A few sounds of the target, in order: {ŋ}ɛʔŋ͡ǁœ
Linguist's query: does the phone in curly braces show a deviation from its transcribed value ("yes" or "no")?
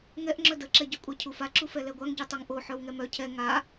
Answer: no